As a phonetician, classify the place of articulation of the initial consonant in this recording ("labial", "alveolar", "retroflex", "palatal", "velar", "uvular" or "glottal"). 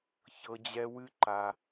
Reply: palatal